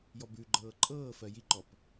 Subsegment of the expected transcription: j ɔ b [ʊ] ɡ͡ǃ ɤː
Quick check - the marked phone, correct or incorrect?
incorrect